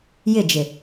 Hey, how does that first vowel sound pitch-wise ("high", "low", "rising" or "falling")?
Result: falling